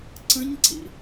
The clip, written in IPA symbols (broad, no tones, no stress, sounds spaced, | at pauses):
ǀ ə̃ ɲ ǀ ḭ